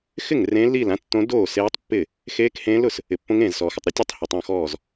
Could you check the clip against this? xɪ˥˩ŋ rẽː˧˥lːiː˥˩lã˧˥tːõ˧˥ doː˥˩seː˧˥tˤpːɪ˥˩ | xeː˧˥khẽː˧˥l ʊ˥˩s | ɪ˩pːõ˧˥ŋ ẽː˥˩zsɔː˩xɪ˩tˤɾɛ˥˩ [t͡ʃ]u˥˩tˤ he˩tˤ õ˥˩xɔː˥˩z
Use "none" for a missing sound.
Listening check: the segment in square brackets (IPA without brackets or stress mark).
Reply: tʲ